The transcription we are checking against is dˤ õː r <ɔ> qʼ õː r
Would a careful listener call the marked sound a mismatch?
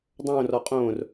no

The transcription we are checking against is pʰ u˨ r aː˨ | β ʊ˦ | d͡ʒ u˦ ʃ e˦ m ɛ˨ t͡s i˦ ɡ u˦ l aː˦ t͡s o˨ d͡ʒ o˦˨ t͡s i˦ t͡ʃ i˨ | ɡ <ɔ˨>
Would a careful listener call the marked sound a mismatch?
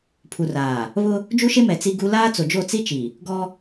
yes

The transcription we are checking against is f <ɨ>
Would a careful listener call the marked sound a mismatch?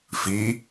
yes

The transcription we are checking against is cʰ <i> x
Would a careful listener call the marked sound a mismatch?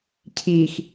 no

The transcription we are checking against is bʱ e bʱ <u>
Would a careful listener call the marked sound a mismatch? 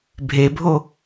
yes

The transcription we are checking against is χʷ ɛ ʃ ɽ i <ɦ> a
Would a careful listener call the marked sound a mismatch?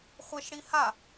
yes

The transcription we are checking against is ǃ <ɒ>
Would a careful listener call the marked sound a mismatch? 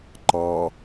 yes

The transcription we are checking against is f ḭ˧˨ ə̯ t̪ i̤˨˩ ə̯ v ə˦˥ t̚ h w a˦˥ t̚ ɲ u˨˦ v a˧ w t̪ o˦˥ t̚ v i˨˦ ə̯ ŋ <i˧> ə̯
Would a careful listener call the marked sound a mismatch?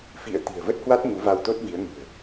yes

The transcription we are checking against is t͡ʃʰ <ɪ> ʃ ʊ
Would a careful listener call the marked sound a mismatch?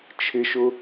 no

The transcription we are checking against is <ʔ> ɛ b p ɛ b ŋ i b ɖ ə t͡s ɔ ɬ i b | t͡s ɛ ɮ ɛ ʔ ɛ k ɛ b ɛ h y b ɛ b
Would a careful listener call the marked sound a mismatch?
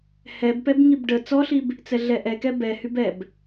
yes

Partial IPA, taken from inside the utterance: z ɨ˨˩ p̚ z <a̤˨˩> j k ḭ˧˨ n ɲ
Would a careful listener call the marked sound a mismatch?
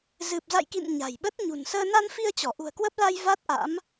yes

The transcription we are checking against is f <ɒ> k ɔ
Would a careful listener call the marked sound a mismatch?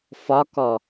no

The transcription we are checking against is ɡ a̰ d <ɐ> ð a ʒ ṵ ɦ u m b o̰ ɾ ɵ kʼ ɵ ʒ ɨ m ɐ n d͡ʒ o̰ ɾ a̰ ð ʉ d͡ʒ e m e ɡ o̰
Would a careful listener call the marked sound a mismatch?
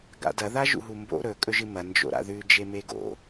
no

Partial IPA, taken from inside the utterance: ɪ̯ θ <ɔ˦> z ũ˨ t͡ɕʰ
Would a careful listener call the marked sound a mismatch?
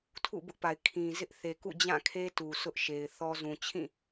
no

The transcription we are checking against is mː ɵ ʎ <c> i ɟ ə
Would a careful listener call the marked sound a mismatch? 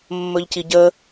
no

